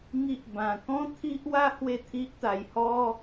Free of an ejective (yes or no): yes